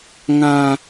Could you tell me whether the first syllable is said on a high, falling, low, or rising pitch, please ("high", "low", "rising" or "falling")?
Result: low